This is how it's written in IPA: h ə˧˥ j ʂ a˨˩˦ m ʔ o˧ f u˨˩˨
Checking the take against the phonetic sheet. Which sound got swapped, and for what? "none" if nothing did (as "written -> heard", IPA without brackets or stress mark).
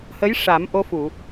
none